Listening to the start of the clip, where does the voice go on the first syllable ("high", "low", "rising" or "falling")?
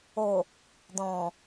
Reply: low